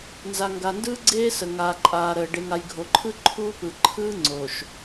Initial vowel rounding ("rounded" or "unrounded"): unrounded